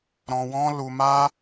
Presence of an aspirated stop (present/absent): absent